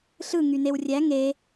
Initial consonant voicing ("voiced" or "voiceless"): voiceless